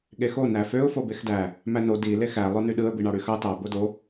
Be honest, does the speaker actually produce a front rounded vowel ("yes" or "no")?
yes